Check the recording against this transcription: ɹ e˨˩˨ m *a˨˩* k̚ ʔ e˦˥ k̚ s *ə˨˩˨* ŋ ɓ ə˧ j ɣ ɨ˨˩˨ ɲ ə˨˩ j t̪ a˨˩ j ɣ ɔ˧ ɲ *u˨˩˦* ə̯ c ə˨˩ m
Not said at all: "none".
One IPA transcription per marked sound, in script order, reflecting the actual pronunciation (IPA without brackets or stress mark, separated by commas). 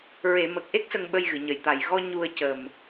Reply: ə˨˩, ə˧, u˧